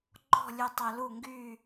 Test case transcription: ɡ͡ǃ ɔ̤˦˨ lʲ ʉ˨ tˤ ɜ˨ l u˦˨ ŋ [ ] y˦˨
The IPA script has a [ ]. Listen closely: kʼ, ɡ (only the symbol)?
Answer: ɡ